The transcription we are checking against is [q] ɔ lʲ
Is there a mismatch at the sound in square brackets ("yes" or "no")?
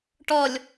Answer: yes